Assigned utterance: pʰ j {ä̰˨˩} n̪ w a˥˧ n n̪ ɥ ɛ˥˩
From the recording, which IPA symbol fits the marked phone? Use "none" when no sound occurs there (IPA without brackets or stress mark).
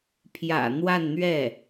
ä̰˨˩